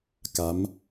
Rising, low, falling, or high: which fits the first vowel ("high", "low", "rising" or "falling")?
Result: rising